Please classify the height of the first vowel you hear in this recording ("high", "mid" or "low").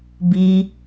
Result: high